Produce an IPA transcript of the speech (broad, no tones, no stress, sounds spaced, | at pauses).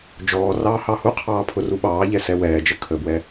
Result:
d͡ʒ ɔː r ɑː h ɑ h u qʰ ɑː pʰ ʊ r u ɓ ɑː ʎ ɛ s ɛ w ɛː d͡ʒ ə kʰ ə b w ɛ